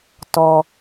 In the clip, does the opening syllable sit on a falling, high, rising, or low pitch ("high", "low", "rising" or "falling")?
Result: low